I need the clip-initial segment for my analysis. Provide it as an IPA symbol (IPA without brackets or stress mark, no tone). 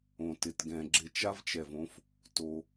õ